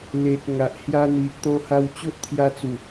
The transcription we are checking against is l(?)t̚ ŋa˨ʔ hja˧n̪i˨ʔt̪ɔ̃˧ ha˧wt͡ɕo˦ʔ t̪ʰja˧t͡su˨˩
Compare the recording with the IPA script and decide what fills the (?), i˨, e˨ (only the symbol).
e˨